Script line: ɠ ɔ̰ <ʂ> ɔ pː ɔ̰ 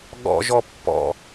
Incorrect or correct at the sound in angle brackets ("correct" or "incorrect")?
incorrect